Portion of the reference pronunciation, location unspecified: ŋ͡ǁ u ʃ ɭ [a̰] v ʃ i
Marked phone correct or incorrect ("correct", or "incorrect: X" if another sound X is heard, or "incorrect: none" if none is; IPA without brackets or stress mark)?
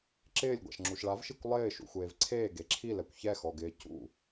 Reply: incorrect: a